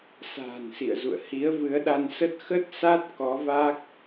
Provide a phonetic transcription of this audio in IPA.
s a̤ː˨˩ n s ḭ˧˨ ə̯ z ṵ˧˨ ə̯ h i˨˦ ə̯ v ɨ˨˦ ə̯ ɗ a˧ n s ə˦˥ t̚ x ə˦˥ t̚ s a˦˥ t̚ k ɔ˨˦ v a˦˥ k̚

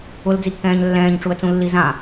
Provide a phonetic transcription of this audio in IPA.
ʊ l d͡z i kː ɛ̃ː ɲ lː ɛ̃ː ɲ ʈ͡ʂ u ə̯ t͡s ũ lː i z ã

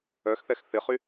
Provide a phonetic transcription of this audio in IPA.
œ x θ ɛ x θ ɪ χ y

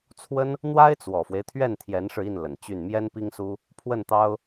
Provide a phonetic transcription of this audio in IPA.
t͡sʰ w ə˥ n | n̪ w a˥ ɪ̯ t͡s w ɔ˨˩ f w e˦ ɪ̯ t̪ʰ ɥ ɛ˥˩ n t̪ʰ j ɛ˧˥ n ʂ ɻ̩˧ i˥˩ n l ə˨˩ n t͡ɕ y˥˩ n m j ɛ˥ n p i˥ ŋ s u˥ | pʰ w ə˥˩ n t̪ ɑ˥ ʊ̯

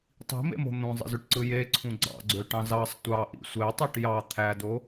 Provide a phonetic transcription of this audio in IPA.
tˤ i̤ m ḛ m o̤ n̪ ũ zˤ ḭ z y ʈ ǀ ɯ j e ǀʰ ũ ɡ͡ǀ ɑ̰ ɡ͡ǀ ø ʈ ɑ̃ z ɑ sˤ tʷ ɑ ʔ ḭ sʷ e tˤ i ʈ j ɑ t̪ʰ æ d o

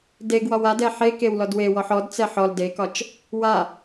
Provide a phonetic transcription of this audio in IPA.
d e ɡ w ɒ w a d ɛ ħ e k e w l ɔ d w e w ɔ ħ ɔ d t͡s ɛ ħ ɔ l d e k ɒ t͡ʃ | w a

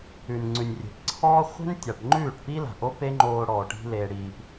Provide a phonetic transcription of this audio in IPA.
ʉ˨ n ŋ͡ǀ ʉ˨ nʲ rʲ e̤˨ p ǀʰ ɔː˦ χʷ e̤˦ n tʲ a˨ ʈ ŋ͡ǃ ʉː˦˨ ʈ p i˦ l a̤˨ ʔ o˦ p e˦ ŋ͡ǃ oː˧ ɽ ɔː˨ ʈ i̤˦ l e˧ ɽ iː˧ p

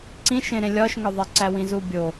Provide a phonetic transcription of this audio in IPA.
ǀ ĩ ʃ ẽ ɾ ẽ lʲ ɒ ʃ ŋ ɒ ðˤ i ǀ æ w ĩ z u bʲ o

